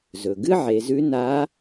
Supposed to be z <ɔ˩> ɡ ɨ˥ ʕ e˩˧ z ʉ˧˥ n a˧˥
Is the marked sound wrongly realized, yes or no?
yes